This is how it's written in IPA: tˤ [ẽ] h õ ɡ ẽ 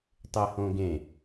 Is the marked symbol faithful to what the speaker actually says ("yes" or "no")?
no